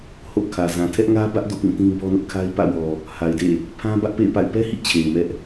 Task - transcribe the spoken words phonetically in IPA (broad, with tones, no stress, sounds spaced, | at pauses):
h o̰˦˨ kʰ ä˨ z ã˨ tʰ ɛ˦ ʔ ŋ ä˦ b ä˦ ʔ d o̰˦˨ p ĩ˦˨ t ĩ˦ b ɔ˦ n ʊ˦ ʔ kʰ a˦ ɪ̯ p ä̰˦˨ w ɔ˨ | h a˨ ɪ̯ d ḛ˦˨ | pʰ ã˦ b ä˦ ʔ p ḛ˦˨ ɪ̯ p a̰˦˨ ɪ̯ p ɛ˦ h ḭ˦˨ t͡ɕʰ e˨ ɪ̯ m ɛ˦ ʔ